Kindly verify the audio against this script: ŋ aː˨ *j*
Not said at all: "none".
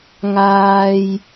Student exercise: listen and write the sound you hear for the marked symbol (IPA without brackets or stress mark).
j